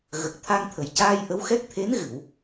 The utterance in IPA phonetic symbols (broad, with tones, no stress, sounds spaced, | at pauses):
ɣ ə˨˩ k̚ t̪ʰ a˧ ŋ t̪ʰ ə˨˩ j c aː˧ j ʔ ə˧˥ w x ɛ˦˥ k̚ t̪ʰ e˧˥ n ɣ ɨ˨˩˨ w